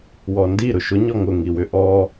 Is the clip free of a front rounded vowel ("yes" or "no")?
no